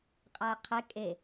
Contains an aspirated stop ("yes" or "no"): yes